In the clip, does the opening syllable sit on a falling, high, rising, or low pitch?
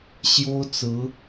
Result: high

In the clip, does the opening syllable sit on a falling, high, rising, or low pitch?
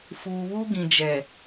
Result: low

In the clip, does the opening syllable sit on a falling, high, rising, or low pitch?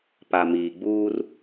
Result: low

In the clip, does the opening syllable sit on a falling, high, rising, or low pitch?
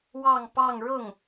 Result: falling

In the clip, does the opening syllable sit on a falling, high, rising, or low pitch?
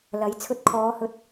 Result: rising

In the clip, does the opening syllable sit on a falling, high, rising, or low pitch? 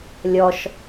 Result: high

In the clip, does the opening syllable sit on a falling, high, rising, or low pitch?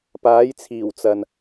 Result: rising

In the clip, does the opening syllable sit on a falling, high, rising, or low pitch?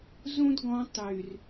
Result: high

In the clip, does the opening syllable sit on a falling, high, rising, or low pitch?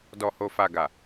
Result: low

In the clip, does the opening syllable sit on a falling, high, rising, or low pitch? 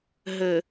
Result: low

